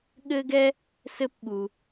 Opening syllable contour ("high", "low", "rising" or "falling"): high